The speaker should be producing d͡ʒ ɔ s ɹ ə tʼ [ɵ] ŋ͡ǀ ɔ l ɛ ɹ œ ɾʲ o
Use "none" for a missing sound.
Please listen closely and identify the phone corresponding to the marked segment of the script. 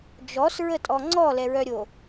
ɔ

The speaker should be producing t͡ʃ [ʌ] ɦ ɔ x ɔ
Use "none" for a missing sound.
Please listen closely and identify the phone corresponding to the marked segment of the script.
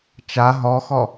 a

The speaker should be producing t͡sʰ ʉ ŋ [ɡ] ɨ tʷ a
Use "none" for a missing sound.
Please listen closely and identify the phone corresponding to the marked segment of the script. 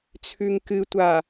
k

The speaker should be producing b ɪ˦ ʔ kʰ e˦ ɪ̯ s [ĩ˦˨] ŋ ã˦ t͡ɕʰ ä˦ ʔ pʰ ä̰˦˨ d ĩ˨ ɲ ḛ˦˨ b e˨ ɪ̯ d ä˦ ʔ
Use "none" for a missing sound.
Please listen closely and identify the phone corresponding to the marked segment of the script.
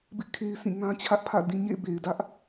ĩ˦˨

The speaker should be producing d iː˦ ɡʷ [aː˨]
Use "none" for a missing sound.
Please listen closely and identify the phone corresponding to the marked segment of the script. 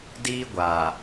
aː˨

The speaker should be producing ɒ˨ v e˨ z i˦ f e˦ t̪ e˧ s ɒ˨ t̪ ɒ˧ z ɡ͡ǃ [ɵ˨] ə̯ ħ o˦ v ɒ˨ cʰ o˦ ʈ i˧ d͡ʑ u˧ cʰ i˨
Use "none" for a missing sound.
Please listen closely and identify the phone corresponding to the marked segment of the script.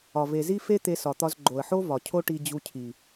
o˨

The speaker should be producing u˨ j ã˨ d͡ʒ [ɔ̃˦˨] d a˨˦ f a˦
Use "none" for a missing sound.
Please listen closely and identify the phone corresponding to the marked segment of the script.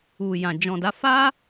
ɔ̃˨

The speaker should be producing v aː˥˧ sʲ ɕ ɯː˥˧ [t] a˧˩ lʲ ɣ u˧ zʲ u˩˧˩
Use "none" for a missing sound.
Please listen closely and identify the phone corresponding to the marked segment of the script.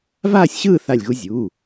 θ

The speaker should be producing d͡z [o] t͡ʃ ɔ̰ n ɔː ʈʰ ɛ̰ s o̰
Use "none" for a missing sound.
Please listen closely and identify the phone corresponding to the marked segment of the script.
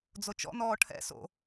o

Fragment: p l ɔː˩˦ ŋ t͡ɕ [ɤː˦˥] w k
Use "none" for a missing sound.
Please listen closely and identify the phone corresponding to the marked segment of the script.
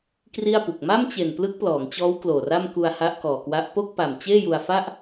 ɔː˦˥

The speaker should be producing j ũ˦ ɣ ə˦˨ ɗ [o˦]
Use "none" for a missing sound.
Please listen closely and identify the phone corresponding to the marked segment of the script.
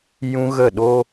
o˦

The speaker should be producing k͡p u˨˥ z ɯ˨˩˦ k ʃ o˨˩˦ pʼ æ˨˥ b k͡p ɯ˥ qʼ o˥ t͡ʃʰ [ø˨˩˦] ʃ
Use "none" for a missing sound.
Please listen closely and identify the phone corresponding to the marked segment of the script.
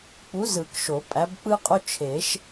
e˨˩˦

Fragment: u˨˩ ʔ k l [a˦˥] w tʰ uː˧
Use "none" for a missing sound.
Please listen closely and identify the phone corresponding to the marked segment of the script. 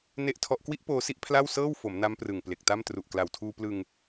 a˨˩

